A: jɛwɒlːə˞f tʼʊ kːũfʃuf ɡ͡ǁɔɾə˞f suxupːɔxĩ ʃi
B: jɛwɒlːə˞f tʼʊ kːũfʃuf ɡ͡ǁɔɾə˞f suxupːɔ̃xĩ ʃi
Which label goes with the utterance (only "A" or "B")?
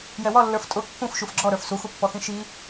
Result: A